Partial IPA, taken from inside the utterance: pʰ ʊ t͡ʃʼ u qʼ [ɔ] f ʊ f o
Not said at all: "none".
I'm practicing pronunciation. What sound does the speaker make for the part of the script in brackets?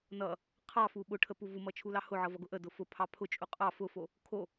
ɑ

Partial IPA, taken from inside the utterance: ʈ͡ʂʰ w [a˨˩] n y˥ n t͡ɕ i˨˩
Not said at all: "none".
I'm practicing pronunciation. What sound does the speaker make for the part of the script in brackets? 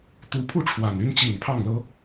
a˨˩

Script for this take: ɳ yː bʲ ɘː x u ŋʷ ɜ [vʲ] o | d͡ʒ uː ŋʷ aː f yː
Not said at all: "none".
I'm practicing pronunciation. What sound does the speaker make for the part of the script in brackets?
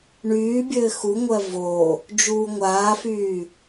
v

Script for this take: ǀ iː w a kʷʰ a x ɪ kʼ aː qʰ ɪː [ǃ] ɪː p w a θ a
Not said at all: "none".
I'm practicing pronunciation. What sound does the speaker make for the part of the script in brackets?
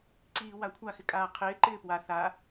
ǃ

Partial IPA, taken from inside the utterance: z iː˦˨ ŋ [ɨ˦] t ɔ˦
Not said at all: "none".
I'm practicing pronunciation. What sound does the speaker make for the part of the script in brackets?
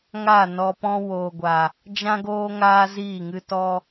ɨ˦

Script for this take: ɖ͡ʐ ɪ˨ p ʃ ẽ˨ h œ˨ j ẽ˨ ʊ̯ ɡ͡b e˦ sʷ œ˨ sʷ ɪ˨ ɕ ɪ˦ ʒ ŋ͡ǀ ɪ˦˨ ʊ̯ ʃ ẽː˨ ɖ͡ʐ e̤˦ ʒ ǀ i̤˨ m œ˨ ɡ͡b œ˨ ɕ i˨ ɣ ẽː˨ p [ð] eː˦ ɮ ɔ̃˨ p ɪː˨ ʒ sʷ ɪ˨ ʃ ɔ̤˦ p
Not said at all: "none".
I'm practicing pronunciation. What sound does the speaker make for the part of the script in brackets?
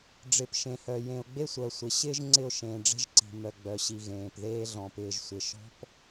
ð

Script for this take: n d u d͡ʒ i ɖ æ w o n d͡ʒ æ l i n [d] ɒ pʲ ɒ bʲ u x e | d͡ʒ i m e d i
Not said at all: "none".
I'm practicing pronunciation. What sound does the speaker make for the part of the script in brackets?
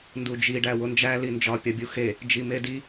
d͡ʒ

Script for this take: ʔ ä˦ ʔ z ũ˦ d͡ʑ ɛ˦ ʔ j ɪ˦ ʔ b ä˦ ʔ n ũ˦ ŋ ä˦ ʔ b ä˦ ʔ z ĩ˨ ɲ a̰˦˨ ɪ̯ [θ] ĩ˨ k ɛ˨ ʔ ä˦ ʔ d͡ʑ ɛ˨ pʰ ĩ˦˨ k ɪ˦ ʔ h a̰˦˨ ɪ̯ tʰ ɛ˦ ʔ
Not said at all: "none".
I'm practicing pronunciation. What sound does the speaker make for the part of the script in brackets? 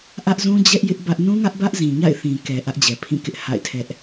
θ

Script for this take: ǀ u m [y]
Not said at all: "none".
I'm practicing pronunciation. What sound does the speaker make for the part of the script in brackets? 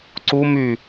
y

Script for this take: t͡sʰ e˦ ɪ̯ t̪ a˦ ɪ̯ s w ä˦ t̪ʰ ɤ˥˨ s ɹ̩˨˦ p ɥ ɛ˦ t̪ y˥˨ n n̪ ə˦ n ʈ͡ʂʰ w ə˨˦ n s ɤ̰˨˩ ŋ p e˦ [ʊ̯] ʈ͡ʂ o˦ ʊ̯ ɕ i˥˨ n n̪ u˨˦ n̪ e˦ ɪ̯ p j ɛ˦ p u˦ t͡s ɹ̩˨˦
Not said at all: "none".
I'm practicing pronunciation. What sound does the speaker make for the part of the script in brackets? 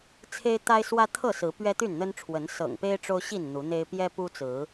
ɪ̯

